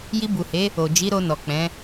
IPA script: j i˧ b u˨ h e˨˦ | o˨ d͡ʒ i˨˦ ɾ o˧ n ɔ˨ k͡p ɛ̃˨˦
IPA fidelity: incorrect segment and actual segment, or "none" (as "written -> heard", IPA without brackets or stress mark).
none